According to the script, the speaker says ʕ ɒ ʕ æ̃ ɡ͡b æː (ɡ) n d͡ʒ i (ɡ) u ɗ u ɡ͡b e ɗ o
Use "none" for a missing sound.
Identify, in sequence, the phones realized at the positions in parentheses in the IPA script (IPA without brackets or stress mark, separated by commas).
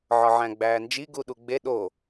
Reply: none, ɡ